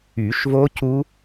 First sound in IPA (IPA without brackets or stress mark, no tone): y